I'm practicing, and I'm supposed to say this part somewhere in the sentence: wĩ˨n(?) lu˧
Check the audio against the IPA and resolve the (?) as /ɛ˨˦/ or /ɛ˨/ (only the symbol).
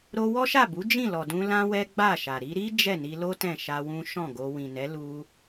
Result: ɛ˨˦